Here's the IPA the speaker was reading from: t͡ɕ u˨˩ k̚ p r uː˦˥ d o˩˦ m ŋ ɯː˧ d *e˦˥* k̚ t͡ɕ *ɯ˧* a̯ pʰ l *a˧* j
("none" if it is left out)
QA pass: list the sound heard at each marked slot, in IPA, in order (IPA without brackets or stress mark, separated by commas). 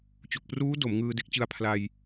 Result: e˦˥, ɯ˧, a˧